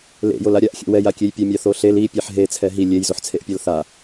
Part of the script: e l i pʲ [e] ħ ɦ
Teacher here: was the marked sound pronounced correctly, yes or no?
no